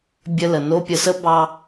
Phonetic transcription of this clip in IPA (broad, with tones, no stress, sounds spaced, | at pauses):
bʲ ə˧ l ə˩ n o˥ pʲ ə˧ s ə˥ b ɑ˧